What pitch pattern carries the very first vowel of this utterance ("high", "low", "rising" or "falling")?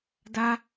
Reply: high